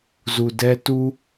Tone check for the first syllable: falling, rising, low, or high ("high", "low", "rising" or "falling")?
low